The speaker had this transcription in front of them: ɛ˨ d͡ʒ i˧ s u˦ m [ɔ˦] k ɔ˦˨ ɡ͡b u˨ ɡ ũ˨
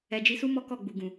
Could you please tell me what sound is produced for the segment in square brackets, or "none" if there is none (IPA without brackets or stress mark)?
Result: ɔ˦